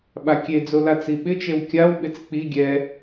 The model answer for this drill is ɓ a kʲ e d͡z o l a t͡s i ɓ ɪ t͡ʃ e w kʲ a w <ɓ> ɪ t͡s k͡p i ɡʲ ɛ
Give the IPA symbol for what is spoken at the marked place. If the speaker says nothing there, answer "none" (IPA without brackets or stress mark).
ɓ